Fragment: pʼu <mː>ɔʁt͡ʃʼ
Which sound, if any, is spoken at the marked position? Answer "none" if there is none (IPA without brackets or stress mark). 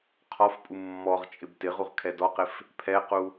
mː